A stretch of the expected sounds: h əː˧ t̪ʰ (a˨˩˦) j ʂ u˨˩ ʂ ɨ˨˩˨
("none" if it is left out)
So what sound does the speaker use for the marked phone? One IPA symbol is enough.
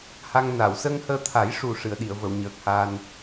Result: a˨˩˦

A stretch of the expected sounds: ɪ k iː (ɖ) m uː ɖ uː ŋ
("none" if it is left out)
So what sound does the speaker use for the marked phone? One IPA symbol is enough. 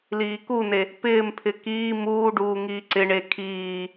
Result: none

